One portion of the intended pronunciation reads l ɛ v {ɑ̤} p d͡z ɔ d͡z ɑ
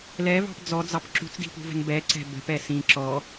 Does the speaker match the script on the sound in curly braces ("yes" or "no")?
yes